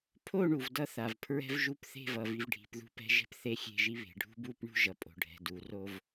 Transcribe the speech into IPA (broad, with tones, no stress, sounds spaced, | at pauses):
pʰ o˦˨ ɳ u˨ v d ʌ˦ θ a˨ v pʰ ɹ ɛ̤˦ v ʒ u˦ p θ e̤˦˨ v ʌ˨ v i˨ v ɖʱ i̤˨ p ð ṳ˦ p ɛ̤˦ ʒ ɛ̤˦ p θ e˦˨ xʲ e̤˦˨ ʒ i˦ β e̤˨ ɖʱ ṳ˦ b u˦ p ɳ ṳ˦ ʒ ʌ˨ pʼ o̤˨ ɖʱ ɛ̤˨ d u˨˦ r o˦ v